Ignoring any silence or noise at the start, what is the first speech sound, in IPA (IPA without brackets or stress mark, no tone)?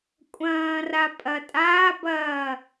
kʷʼ